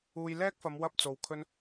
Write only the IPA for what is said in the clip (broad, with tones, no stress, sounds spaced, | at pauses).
uː˧ j l ɛː˥ k̚ f ɐ˨˧ m w ɐ˥ p̚ t͡s o˨˧ w kʰ ɵ˥ n